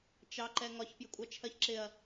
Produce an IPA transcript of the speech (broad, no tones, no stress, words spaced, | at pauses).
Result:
t͡ʃɑ ǃɛŋɒç pjɪkʷʼɑt͡ʃʰɜçǁɪɐ̯